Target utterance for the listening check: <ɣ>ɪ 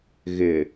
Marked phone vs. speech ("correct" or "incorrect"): correct